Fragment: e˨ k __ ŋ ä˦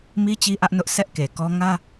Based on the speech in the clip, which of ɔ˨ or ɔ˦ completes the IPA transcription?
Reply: ɔ˦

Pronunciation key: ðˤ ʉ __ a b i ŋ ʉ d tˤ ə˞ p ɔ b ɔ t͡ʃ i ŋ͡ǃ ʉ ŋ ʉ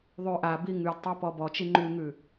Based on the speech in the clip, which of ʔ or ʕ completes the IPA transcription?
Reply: ʔ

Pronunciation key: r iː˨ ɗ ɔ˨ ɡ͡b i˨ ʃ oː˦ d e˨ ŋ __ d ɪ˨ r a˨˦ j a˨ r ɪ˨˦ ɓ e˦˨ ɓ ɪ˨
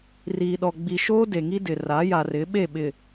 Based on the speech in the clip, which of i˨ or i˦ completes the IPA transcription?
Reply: i˦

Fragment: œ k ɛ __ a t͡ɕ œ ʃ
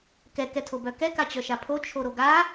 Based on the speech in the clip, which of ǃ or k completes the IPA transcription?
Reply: k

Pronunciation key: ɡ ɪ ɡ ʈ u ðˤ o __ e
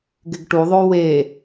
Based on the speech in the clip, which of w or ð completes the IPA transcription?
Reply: w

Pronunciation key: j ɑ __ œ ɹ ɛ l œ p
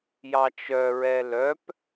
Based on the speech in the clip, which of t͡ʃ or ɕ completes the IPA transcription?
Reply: t͡ʃ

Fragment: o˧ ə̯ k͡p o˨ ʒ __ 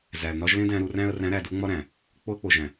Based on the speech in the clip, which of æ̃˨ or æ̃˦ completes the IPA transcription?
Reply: æ̃˨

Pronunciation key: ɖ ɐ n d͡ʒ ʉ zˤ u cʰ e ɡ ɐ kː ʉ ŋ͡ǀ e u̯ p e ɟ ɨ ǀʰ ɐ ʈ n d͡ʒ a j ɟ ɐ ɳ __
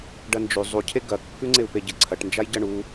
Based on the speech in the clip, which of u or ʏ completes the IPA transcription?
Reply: u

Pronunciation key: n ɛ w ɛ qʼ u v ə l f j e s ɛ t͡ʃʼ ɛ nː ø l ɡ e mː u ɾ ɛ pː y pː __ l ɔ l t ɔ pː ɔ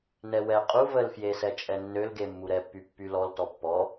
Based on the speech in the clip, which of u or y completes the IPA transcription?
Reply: y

